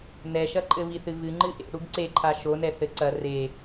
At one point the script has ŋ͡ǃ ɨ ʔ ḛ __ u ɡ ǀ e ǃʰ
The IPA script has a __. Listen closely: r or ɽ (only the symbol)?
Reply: ɽ